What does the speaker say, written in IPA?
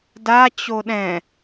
d a t͡ɕ o ɗ ɛ̃

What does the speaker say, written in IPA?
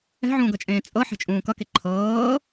ɛ̤ ʕ ũː ɡ ʌ t͡ʃʼ ẽː t͡sʼ ɤ ħ ɛ̤ t͡ʃʼ ũː k ʌ k e ǃʰ ɤː

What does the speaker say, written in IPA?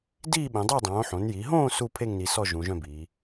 d iː˥˨ ɓ ẽ˩˧ dˤ e˥˨ dˤ õː˩˧ ħ õ˩˧ n j i˩˧ ɦ õː˥˨ s u˥˨ pʰ e˥˨ ŋ n i˩˧ s ɔ˥˨ ʒ ũ˩˧ ʒ œ̃˥˨ b iː˩˧

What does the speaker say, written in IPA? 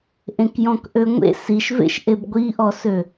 ʔ ẽ k j ɔ̃ k ʔ ø ŋʷ ḛ s i ʃ v ḛ ʃ ʔ e b ɡʷ i ʔ ɔ s ø

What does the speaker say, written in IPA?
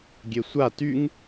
ɡʲ e sʷ a t y ŋ

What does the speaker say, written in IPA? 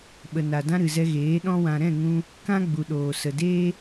ɓ ə˨ n a˨ d ã˧ ɾ ɨ˨ z ɛ˧ ɣ eː˨˦ ɗ ɔ̃˧ w ã˨ ɾ ɛ̃˦˨ ŋ ũ˧ | k ã˦ ɡ͡b u˨ ɗ oː˨ s ə˨ d eː˦

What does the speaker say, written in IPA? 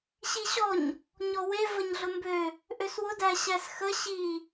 ɕ i ɕ ɔ ɲ | ɲ ɔ w e v ə ɲ ɮ ʊ m b ø | ʔ ø s w ʊ d æ ɕ æ s x ə ɕ i

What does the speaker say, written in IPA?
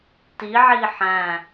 t i ʕ i ħ æ̃

